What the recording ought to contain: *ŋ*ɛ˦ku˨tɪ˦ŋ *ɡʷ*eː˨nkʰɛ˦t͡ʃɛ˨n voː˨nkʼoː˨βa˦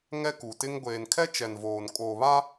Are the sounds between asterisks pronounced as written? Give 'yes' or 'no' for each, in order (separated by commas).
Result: yes, yes